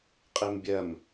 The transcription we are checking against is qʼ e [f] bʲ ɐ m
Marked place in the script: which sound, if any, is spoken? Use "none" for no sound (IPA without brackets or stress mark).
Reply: m